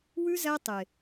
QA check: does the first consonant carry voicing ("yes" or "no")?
yes